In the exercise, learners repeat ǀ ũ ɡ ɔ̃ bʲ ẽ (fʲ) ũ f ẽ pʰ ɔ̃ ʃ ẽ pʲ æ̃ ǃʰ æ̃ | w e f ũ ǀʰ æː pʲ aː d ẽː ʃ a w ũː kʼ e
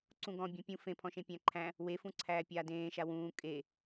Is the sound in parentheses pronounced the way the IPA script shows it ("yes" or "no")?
no